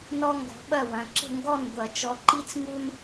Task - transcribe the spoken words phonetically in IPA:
n ɔ˦ ŋ ɡ ɔ̤˨˦ ɓ ɐ˥˨ w ɐ̃˩˧˩ ǁ ə̤˥˨ ŋ ɡ ɔ˥˨ n ɡʷ ɐ˨˩˦ t͡ʃ ɔ˨˦ ǃ i˦ t͡s ŋ u˦ n

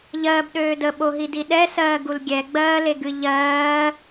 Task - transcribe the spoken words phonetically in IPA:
ʎ ɜː b ɗ øː d ə ɓ o ɦ i d i ɗ ɛ s ɜː ɡ u l ɡʲ ɛ ɡ͡b ɜː l e ɡ ɨ ʎ ɜː

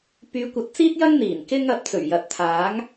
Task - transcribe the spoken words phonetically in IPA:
p yː˨˧ kʷ ɐ˨˥ t̚ t͡s iː˥ t̚ j ɐ˥ ŋ n̪ iː˨˩ n k ɪ˧ ŋ ɐ˨ p̚ t͡s ɵ˨˩ ɥ j ɐ˨˥ t̚ t̪ʰ aː˨˥ ŋ

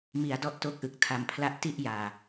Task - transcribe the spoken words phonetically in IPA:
m i˩˦ a̯ d ɔ˦˥ ʔ t o˦˥ k̚ ʔ ɯ˨˩ k̚ tʰ a˨˩ m pʰ l a˦˥ ʔ t i˥˩ ʔ j aː˨˩

